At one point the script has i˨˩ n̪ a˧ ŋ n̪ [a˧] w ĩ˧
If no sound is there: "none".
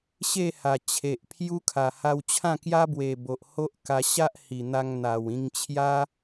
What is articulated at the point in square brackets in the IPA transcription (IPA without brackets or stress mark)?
a˨˩